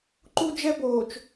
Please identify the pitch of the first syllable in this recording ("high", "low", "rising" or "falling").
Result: high